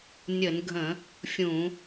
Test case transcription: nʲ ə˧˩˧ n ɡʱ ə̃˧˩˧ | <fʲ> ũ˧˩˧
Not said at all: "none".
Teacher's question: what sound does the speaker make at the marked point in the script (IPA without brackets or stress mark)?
fʲ